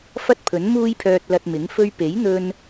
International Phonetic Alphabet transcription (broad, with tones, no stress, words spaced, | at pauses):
fɐ˥t̚pʰɵ˨˥nmuː˥jpʰœː˧t̚ lɐ˧t̚mɪ˨˥ŋ fɵ˧ɥpe˨˥jn̪ɵ˧n